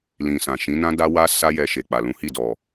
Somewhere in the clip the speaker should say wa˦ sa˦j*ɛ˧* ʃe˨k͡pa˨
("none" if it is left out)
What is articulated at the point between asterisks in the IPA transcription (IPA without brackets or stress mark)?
ɛ˧